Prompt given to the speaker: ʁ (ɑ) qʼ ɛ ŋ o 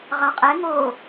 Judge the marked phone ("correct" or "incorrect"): correct